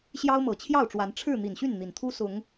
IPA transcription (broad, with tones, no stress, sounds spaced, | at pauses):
ɕ j ɑ˦ ʊ̯ m ɤ˨˩ t͡ɕʰ j ɑ˥˨ ʊ̯ ʈ͡ʂ w a˨˦ n ʈ͡ʂʰ ɻ̩˥˨ n̪ i˨˩ n ɕ y˥˨ n n̪ i˨˩ n t̪ʰ u˦ s ʊ˨˦ ŋ